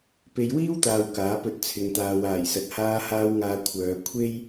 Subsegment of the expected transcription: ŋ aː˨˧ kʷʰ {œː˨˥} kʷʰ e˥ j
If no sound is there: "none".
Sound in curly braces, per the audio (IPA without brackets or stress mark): œː˨˧